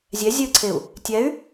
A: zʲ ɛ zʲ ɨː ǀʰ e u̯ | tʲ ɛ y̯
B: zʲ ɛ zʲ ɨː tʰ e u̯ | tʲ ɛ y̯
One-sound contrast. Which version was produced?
A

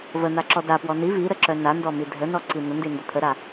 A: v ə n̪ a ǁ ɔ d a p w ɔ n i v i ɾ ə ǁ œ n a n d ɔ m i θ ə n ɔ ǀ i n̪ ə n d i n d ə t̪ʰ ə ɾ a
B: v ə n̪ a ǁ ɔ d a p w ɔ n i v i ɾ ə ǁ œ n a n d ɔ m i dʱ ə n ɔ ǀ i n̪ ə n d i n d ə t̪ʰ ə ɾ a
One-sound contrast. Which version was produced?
B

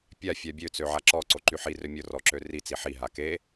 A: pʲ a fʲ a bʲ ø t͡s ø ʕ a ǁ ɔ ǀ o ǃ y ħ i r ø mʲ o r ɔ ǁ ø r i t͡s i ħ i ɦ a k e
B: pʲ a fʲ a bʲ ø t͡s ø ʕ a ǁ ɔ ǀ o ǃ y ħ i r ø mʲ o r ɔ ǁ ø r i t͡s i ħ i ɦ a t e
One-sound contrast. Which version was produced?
A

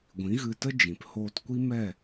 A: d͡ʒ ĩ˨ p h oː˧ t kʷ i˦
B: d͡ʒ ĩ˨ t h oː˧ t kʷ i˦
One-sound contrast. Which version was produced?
A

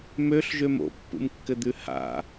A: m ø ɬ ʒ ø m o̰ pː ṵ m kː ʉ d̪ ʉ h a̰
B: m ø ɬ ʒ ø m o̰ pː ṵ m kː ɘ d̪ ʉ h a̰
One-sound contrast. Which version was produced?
B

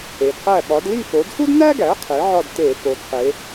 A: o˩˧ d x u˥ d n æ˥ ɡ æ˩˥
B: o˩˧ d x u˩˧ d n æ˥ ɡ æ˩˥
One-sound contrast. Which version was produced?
A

